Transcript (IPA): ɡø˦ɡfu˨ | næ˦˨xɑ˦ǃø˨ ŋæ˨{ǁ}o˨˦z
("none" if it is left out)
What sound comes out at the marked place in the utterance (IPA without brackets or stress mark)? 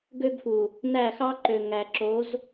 ǁ